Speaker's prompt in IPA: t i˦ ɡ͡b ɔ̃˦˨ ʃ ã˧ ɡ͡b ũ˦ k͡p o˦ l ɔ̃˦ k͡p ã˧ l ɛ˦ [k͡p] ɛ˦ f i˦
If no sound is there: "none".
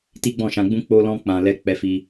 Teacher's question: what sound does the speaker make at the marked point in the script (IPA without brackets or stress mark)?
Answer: k͡p